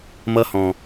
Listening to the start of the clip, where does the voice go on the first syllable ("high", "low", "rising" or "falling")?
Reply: high